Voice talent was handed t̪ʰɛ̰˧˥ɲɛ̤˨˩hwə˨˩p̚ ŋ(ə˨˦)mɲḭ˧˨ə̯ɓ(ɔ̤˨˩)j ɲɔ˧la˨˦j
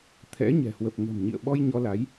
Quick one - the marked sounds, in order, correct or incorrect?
incorrect, incorrect

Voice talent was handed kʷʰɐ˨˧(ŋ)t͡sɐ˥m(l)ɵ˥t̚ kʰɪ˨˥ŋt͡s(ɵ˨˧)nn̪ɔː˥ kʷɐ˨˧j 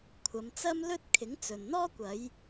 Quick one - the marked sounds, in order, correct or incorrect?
incorrect, correct, incorrect

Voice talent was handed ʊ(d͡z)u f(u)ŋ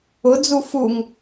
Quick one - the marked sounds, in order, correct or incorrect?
correct, correct

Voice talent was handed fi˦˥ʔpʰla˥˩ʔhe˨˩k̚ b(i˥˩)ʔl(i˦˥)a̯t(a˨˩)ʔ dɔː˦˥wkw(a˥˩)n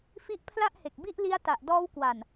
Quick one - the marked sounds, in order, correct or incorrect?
correct, correct, correct, incorrect

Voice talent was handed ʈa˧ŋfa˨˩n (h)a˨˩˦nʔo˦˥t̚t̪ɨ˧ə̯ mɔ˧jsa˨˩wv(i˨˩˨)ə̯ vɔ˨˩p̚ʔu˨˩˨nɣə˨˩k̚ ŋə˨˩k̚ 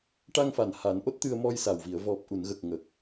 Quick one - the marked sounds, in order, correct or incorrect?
correct, correct

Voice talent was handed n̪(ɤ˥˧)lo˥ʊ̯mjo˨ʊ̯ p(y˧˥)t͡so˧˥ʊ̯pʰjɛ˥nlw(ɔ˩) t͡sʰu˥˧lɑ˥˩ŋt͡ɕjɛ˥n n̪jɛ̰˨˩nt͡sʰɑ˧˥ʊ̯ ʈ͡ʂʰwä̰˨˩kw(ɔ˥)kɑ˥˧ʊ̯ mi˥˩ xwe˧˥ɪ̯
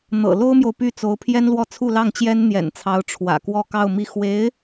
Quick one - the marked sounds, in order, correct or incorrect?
incorrect, incorrect, incorrect, incorrect

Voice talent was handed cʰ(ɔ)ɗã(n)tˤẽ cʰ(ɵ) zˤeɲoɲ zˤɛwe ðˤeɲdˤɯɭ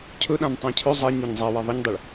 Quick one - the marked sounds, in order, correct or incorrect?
incorrect, correct, correct

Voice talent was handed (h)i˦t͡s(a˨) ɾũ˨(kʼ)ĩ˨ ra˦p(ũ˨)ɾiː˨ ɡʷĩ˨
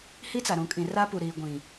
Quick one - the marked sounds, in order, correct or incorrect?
correct, correct, correct, incorrect

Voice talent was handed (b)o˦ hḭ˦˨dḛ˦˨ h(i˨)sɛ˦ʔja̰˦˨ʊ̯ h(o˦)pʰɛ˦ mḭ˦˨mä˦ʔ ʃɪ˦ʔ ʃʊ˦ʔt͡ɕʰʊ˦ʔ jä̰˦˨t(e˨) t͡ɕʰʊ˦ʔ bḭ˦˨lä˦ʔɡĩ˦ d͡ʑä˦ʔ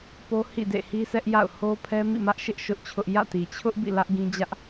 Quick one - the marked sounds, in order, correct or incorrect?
incorrect, incorrect, correct, incorrect

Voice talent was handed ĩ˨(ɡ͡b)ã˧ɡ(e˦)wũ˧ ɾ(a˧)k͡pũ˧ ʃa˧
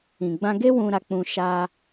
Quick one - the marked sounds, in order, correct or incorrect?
correct, correct, correct

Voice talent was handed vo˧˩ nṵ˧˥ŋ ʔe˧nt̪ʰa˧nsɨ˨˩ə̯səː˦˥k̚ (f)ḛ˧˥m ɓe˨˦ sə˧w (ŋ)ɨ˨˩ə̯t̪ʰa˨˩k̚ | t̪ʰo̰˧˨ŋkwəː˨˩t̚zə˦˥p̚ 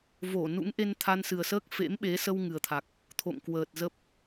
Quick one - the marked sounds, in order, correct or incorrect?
correct, correct

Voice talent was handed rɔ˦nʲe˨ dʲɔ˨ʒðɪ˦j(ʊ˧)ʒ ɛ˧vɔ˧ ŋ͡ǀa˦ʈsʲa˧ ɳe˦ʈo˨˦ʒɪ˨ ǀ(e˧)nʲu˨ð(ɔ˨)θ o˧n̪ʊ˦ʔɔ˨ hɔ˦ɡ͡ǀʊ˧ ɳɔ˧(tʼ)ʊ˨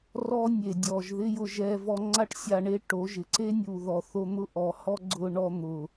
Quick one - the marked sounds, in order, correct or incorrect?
correct, incorrect, correct, incorrect

